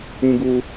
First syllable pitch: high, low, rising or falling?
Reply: high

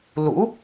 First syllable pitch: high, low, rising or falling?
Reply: rising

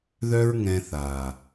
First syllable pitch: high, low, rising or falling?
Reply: high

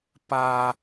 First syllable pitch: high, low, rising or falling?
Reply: high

